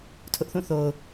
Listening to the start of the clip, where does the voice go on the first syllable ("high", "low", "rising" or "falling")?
high